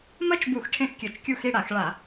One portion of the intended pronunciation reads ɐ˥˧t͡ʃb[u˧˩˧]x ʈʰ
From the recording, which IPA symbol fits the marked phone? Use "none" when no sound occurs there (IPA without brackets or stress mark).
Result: u˧˩˧